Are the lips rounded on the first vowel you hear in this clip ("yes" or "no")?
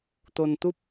yes